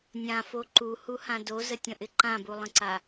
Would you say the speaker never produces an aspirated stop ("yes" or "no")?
yes